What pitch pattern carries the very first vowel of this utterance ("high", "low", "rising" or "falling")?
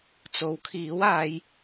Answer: rising